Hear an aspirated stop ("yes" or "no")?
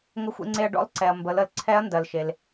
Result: yes